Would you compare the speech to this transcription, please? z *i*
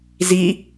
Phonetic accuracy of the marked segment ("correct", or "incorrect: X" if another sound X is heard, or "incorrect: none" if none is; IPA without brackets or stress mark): correct